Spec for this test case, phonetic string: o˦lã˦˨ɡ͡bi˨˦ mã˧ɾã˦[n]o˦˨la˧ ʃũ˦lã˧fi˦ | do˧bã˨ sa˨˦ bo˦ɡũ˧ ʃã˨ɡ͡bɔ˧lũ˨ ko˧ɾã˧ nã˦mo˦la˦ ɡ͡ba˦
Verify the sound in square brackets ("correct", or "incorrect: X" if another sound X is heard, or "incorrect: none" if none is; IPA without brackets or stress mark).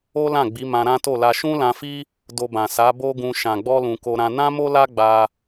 incorrect: t